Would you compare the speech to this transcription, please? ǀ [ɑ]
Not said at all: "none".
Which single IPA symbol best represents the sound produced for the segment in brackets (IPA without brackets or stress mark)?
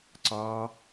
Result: ɑ